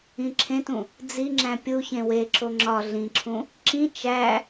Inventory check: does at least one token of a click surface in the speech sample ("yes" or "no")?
yes